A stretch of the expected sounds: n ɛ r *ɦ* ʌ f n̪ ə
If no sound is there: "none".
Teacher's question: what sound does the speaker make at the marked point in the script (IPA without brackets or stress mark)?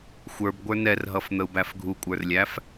ɦ